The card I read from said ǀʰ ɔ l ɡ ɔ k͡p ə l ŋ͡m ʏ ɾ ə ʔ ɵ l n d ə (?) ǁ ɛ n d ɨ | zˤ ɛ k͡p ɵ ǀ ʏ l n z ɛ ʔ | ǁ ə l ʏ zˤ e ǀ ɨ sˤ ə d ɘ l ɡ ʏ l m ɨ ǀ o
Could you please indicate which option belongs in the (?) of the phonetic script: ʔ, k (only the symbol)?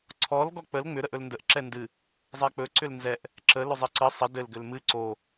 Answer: ʔ